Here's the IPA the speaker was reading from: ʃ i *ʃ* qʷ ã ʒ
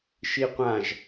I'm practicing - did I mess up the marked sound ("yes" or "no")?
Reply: yes